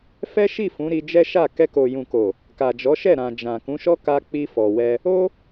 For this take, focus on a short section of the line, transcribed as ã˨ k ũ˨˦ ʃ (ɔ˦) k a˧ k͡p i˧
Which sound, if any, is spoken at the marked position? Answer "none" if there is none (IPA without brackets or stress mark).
ɔ˦